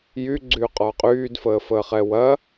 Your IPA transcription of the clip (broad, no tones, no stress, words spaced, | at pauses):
jyɡ͡ǀyː qʼɔːqʼyːdfəː fəːχɛwɐ